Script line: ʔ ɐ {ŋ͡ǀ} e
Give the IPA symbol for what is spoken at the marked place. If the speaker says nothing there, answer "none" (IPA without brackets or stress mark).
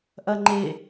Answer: ŋ͡ǃ